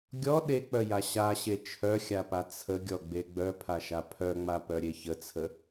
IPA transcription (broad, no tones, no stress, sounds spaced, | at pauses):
ɡʲ ɔ ɗ e k͡p œ j a ɕ a ɕ e t͡ʃʰ œ xʲ a p a t͡sʰ ə ɡʲ ɔ ɡ͡b e ɡ͡b œ pʰ a ʃ a pʰ œ ŋ͡m a p œ ɾʲ e ç ə t͡sʰ ə